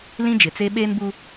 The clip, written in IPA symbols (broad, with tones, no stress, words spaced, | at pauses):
lĩ˦d͡ʒɪ˨t͡se˦ ɓeː˦nbuː˦